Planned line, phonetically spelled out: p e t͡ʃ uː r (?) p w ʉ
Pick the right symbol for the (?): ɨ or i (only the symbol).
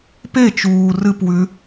ɨ